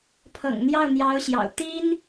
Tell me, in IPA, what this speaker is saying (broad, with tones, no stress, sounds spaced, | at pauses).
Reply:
pʰ ɤ̰˨˩ ŋ n̪ j ɑ˥˩ ʊ̯ n̪ j ɑ˧˥ ʊ̯ ɕ j ɑ̰˨˩ ʊ̯ t̪ i˥ n